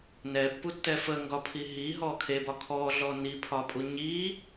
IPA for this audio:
n ɛ pː u tː ɛ f ə ŋ ɡ ɒ pʰ i ɦ i ɦ ɔ kʰ e b ɒ kʰ ɔ ɮ ɔ n i pʰ ɒ pʼ u ɲ i

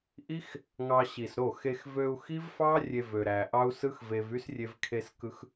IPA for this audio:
ʔ i˦ x | ŋ ɑ˧ ɕ i˨ s ɾ o˦˨ x e˧ x v ø˧ u̯ x i˦ v f ɑ˦ rʲ e˧ v ø˨ ɾ æ˨ ʔ ɑ˦ u̯ s ɯ˦ x v e˧ v y˦ s rʲ e˧ v kʰ e˧ s k ɯ˧ x

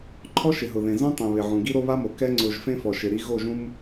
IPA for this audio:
ǃʰ ɔ˦ ʃ ɪ˨ ɦ ʊ˨ ð ẽ˨ z ũ˦ tˤ ẽ˨ β ɪ˨ ʕ ũ˨ ɡ i˦ ɾ o˦ β a˦ m o˨ k ɛ˦ ŋ͡ǀ ʊː˨ ʒ f ẽ˦ f ɔ˨ ʃ ɪ˨ ɾ i˦ ɣ o˦˨ ʒ ũ˦ m

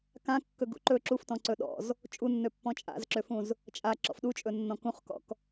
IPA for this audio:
k ã kː ɵ ɡ ṵ ǃ ɵ ǁ u f t ɔ̃ ǀ ɵ ɗ ɔ̰ z | t͡ʃʼ u nː ø pː ɔ̃ t͡ʃʼ a̰ z ǁ ø f ũ z | t͡ʃʼ a ǁ ɔ̰ f ɗ u t͡ʃʼ ɵ nː ɔ̃ k ũ χ k ɔ̰ k

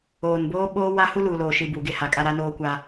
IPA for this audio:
oː˨ n b oː˦ ɓ oː˦ w a˦ h u˦ l uː˨ l oː˨ ʃ i˨ b u˨ ɡ e˦ h a˨ kʼ a˦ ɾ a˦ n oː˦ kʷ a˦

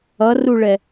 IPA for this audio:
ʌ r u ɭ ɛ

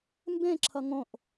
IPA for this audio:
m b ẽ ǁʰ ʌ ŋ õ ʔ

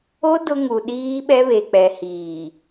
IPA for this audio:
o˦ d ʊ˦ ŋ u˨ ɗ iː˦ ɓ ɛ˦ β e˨ k͡p ɛ˨ h iː˨

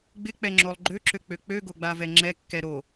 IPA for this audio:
ɡ͡b ɪ k͡p ɛ ŋ͡ǁ o lˠ ɡ͡ǃ ø ǁ ø k͡p ø k͡p ø ɡ o ɡ͡b a v ɛ ŋ͡ǁ ɛ kː ɛ ɾ o

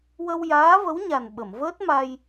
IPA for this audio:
w ə˧ w j aː˧˥ v ə˧˥ w ɲ a˨˩ n ɓ ə˨˩˨ m v əː˦˥ t̚ m a˧ j

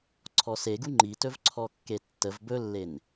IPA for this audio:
ǀʰ ɔ s e ɡ u ŋ͡ǃ i t ɵ v ǀʰ ɔ kː e tː ə v b ɵ lː e n

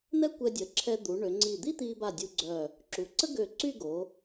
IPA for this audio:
n̪ ɛ˥ kʷ ɛ˧ dʲ ə˩˧ ǁʰ ɛ˧ d̪ u˩˧ ɳ ø˩˧ ŋ͡ǀ i˧˩ d̪ i˥ t̪ i˧ b a˧˩ dʲ u˧ ɡ͡ǀ œ˧˩ | ǁ u˩˧ ǀ ə˥ ɡ ø˧˩ ǀ y˥˧ ɡ o˩˧

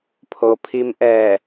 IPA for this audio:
pʰ o˩ pʰ i˧ m ʔ ɛː˧˩

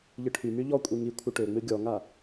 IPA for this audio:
ʎ ɨ ʈʰ y m y ʎ ɔ kʷʼ i ŋ i kʷʰ ɨ ʈ ø ŋ͡m ɨ ɡʲ ɔ ŋ a

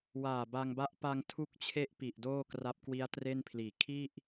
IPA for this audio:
w aː˨˩ b a˧ ŋ b a˦˥ ʔ p a˧ ŋ tʰ u˦˥ k̚ t͡ɕʰ e˦˥ ʔ p i˨˩ ʔ d oː˥˩ k r a˦˥ p̚ k w i˦˥ a̯ t r e˥˩ n pʰ l iː˨˩ kʰ i˥˩ ʔ

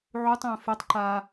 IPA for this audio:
ʕ u tˤ ə̃ː f e tˤ ǃ a

